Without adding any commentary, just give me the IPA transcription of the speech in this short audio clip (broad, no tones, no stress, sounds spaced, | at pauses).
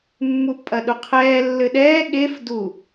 mː u pʼ ɐ ɗ u qʰ ɛː lː ɘ ɗ ɛː ɠ e f d u